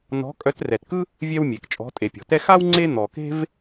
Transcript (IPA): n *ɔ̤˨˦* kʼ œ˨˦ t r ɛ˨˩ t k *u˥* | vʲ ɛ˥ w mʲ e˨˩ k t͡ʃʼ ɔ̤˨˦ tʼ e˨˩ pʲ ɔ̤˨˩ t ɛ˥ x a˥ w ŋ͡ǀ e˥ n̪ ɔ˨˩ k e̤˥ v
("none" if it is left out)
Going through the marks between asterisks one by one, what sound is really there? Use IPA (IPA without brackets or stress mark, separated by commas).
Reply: ɔ̤˨˦, ɯ˥